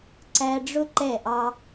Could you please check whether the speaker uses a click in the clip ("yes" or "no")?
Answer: yes